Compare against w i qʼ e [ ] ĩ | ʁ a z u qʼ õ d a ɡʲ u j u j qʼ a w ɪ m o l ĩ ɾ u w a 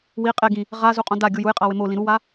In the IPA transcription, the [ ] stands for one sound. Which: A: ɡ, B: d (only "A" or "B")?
A